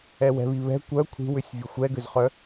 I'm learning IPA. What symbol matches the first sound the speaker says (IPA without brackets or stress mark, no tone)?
ɛ